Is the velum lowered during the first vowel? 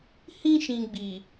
yes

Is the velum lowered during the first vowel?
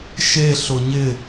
no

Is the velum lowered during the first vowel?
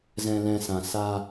yes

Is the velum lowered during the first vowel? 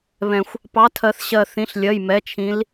yes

